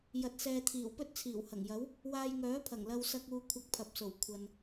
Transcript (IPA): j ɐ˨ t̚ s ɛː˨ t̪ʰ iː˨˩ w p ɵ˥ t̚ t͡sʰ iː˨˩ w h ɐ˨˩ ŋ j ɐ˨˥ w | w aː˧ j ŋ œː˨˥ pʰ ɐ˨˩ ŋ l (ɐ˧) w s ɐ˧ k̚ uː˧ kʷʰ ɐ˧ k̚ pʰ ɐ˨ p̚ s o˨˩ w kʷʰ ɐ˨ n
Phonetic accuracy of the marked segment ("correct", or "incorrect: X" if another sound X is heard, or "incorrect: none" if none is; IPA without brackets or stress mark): correct